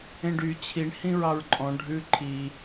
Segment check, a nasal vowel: present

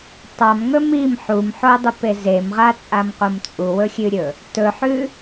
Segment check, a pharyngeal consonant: present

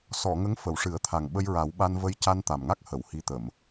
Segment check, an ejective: absent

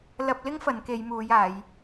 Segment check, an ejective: absent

